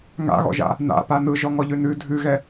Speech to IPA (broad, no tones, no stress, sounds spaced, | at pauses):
ŋ a̰ ɣ ɔ̰ ʒ a̰ | n a̰ p a n ɯ ʒ ɔ ŋ ɔ ʎ ʉ n ʉ dʱ ʉ ɣ ɛ